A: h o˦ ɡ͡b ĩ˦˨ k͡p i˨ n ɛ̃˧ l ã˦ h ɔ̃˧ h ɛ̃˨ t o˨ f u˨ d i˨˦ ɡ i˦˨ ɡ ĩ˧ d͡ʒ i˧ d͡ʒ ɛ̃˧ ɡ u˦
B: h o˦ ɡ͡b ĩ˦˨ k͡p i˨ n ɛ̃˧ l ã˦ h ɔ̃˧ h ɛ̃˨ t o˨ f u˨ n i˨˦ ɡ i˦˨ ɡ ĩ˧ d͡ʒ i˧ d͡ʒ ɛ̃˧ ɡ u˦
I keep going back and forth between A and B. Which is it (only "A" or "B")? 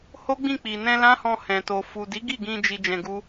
A